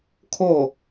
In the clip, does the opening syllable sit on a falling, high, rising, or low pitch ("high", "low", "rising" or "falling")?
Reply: falling